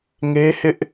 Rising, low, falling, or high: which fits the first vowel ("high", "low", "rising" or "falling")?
high